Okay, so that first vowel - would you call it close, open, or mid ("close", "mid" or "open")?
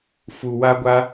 close